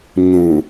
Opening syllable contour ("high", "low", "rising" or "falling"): low